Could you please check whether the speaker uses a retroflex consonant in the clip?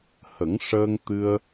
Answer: yes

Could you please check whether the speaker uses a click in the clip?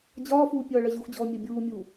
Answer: no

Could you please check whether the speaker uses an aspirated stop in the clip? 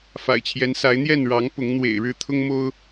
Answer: yes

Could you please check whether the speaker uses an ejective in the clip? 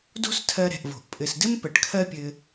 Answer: yes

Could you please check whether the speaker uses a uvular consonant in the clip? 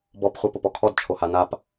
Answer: yes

